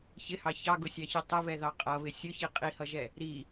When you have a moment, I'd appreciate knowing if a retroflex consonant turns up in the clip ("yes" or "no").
no